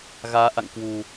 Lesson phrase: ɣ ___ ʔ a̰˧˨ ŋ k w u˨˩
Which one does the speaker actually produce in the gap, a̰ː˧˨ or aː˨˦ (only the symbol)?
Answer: aː˨˦